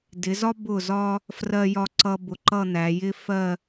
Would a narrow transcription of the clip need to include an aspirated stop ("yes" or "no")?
no